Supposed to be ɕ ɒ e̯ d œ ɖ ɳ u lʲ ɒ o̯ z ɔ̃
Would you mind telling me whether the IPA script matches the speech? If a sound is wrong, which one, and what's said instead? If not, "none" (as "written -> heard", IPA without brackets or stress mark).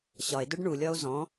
none